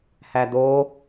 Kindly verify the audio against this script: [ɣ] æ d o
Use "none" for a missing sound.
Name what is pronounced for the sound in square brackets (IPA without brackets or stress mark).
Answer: h